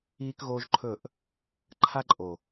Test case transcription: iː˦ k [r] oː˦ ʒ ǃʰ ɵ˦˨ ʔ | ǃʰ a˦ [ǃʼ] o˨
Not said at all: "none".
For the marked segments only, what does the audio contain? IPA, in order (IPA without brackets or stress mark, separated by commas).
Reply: ɣ, ǃʼ